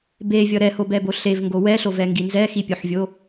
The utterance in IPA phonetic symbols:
bevʲʌ ɾɛhobɛbo ɬevŋɡo wɛɬovɛŋɡi nzɛxipʲoħvʲo

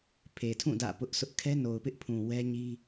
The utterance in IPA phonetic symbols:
pʰe˨tʰũ˦˨ dä̰˦˨pʊ˦ʔsʰʊ˦ʔ kʰɛ˦no˨ʊ̯pɪ˦ʔpʰũ˨ wɛ˦ɲi˦

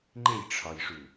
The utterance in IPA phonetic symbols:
ŋ͡ǃejʈ͡ʂʰɒjʂu

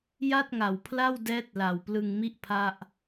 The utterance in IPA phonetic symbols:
ja˥˩t̚ŋa˨˩wpʰla˥˩w dɛː˦˥t̚la˨˩w plɯ˧ŋmi˥˩ʔ pʰa˥˩ʔ

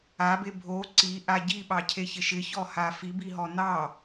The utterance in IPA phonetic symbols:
abe bʱo ǀiʔa ɟiɓɑcʰeçɪʃ ɪçɔha fibiɦɔ nɑ

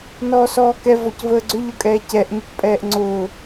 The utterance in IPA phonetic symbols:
nɔːsɔːkɛ vɔcvəːɡ͡ǀʏ ʎʊkʼɛːcɛʔ ɲʏcpʼɛːʔŋ͡ǀʊː

